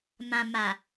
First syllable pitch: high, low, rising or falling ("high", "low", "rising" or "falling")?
low